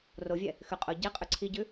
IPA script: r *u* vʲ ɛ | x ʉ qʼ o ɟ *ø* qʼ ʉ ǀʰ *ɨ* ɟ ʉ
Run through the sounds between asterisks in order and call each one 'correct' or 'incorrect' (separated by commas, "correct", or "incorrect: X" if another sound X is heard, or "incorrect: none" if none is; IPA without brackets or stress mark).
incorrect: o, incorrect: e, incorrect: i